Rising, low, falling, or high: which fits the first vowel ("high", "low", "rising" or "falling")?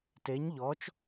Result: rising